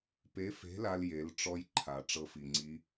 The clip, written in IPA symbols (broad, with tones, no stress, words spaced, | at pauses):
pe˧˥fe̤˧˥la˧lje˩˧l ʈ͡ʂɔ˥j ǃʰa˩ ʈ͡ʂɤ˧fi˩ŋ͡ǀi˧˥